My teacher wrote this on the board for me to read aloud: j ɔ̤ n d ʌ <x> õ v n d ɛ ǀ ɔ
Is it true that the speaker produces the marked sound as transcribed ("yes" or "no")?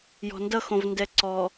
yes